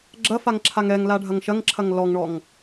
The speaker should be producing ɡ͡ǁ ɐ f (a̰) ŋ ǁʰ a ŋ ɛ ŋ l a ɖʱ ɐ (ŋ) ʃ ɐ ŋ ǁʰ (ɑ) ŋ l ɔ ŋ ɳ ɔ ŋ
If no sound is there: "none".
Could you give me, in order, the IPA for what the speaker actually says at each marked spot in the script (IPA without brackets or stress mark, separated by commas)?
a, ŋ, ɐ